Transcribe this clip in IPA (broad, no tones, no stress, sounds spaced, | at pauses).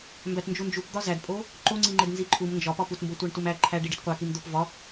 m b æ t n d͡ʒ u n d͡ʒ u p d̪ ɒ z æ d pʼ o | ǃ o ŋ͡ǀ i ŋ͡ǃ e d n z i ǃʰ u m n d͡ʒ ɒ p ɒ p u t m b o tʷ æ ɳ t u m æ ǃʰ æ ɖ i ɖ i t qʷ æ k i m d̪ o p v ɒ